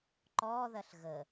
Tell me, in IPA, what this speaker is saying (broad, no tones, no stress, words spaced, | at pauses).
ǃɔðɐɬ ɣə